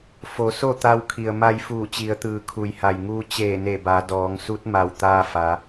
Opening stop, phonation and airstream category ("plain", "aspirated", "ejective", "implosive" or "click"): plain